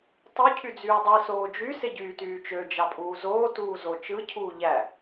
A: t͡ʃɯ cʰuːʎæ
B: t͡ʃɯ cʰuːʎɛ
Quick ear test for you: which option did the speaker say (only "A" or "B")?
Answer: A